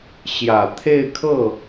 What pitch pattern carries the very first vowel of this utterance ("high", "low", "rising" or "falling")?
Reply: low